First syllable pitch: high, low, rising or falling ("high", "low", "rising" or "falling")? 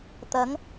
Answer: rising